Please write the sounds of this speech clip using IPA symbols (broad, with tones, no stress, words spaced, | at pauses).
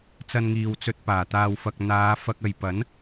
t͡sɐ˧nŋiː˨wt͡sɵ˧t̚ paː˨˩t̪aː˧wfɐ˧k̚ n̪aː˨˧fɐ˧k̚ ɐ˨jpɐ˨˥n